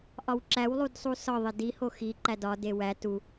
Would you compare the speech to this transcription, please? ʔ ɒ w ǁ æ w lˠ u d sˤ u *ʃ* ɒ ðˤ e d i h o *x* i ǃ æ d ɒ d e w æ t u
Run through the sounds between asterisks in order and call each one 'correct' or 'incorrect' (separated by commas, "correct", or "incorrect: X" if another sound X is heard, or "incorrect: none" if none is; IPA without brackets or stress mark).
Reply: incorrect: s, correct